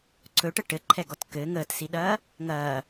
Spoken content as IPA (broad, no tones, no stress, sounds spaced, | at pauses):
ǀ ɵ ʈ ə ʈ ɘ ǃʰ ɛ ɡ ɔ t k ɘ ŋ əː t s i ɗ ɐː | ŋ ɐː